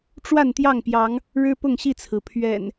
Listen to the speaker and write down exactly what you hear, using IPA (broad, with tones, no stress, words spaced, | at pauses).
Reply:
ʈ͡ʂwa˥˨nt̪jɑ˥˨ŋpjɑ˨˦ŋ | ɻɻ̩˦pʊ˥˨ŋɕi˥˨t͡sʰɹ̩˩ pʰɥɛ̰˨˩n